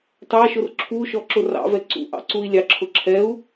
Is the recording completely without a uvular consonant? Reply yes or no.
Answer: yes